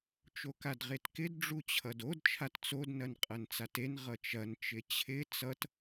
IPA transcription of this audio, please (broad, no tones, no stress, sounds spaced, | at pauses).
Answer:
t͡ʃ o k a d ʁ e t k ɪ d ɖ͡ʐ u t͡ɕʰ ʌ d o d t͡ʃʰ a t t͡s o d n ɐ n qʼ ɐ n t͡s a t e n ʁ ʌ t͡ʃ ɐ n t͡ʃ ɪ t͡ɕʰ ɪ t͡s ʌ t